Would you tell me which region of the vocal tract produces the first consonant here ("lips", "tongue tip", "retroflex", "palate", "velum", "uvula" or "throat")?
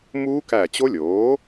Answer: lips